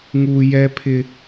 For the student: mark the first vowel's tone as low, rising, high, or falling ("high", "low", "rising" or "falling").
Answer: low